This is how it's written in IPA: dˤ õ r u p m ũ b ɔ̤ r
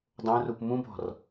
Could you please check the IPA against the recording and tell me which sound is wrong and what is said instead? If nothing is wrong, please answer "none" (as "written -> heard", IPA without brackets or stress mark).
none